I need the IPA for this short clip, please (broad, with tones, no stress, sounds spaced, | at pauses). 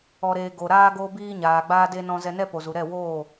ɔ˧ ɾ eː˧ ɡ o˨ ɾ aː˧ ɡ oː˧ b iː˧ ɲ aː˨ ɡ͡b aː˧ d eː˧ n ɔ̃˧ z ɛ˧ n ɛ˦ p o˨ z u˨ ɾ ɛ˦˨ w oː˦˨